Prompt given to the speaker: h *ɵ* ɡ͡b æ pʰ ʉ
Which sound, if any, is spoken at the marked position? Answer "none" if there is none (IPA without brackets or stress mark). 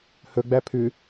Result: ɵ